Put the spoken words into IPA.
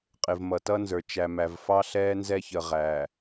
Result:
qʼ ɪ˨ v m ʌ˨ t ʌ˦ n z ə˞˨ t͡ʃ æ˨ m æ˨ v f ɑ˦ ɬ ɛː˦ n z ɛ˦ ç ə˨ ʁ æ˨

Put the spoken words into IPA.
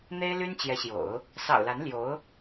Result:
n̪ e˥ ɪ̯ l y˥ n t͡ɕ j ɛ˧˥ ɕ j o̰˨˩˦ ʊ̯ | s ɑ̰˨˩ ʊ̯ l a˧˥ n l j o˧˥ ʊ̯

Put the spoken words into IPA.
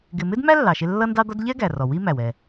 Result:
ɡ ɪ˧ m ɪ˥ d m æ˥ lː ɑ˩ ʃ ɪ˧ lː ʌ˥ n d ɑ˥ d̪ ɒ˥ d ʎ ɛ˥ ɡ æ˩ r ɔ˩ w i˥ m æ˩ w ɛ˩

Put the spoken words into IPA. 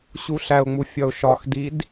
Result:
ɕ u ɬ æ ʊ̯ ŋ͡m u fʲ ɒ ʊ̯ ʃ ɒ x d i d

